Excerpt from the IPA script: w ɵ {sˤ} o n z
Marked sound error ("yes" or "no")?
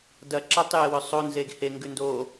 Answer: no